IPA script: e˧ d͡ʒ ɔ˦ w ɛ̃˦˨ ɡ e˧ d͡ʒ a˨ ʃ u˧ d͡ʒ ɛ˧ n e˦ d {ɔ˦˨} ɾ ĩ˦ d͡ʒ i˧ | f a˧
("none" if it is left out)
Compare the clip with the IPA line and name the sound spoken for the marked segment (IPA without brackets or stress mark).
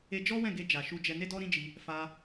ɔ˦